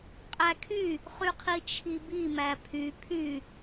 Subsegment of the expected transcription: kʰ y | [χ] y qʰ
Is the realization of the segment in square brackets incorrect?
no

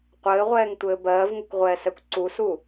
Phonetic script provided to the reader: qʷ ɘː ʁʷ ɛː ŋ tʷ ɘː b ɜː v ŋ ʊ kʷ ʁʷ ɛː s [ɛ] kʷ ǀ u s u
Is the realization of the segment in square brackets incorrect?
no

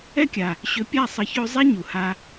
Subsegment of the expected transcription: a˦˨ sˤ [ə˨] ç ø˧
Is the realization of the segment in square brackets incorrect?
no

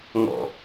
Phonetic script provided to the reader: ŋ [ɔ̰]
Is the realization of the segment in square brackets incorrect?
no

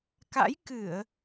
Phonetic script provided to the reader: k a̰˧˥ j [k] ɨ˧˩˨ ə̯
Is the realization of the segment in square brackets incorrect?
no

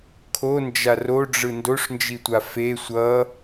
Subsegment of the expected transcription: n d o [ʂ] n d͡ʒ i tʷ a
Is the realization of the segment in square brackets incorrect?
no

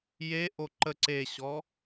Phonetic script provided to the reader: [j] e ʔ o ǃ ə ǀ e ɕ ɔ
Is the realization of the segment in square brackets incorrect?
no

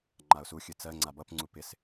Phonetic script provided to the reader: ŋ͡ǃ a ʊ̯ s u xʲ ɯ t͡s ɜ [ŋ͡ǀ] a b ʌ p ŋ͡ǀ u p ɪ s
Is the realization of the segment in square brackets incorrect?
no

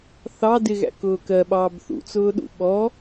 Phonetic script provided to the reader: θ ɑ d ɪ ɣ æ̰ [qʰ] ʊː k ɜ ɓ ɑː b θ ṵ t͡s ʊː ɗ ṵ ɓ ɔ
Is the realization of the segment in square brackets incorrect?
yes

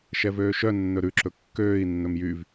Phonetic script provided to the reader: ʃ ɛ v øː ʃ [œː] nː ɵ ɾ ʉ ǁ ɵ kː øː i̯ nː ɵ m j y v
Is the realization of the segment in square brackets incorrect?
yes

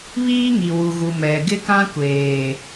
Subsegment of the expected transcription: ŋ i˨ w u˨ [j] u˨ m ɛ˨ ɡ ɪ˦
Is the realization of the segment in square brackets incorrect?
yes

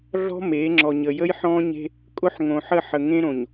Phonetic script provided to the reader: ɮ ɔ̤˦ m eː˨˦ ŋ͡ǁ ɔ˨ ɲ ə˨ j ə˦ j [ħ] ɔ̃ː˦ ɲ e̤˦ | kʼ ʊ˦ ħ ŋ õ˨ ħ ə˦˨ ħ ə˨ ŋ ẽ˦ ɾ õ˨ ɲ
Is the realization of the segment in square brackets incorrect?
no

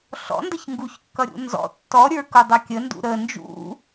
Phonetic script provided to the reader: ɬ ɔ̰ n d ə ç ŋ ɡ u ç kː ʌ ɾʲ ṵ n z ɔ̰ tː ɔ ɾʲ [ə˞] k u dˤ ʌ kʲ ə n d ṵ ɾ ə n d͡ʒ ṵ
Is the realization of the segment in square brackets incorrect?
no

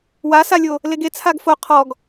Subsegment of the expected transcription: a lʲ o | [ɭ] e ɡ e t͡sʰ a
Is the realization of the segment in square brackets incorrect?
yes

